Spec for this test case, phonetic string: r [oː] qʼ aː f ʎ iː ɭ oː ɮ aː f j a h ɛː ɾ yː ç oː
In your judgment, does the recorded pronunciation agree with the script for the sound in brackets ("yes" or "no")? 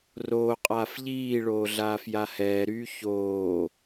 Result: yes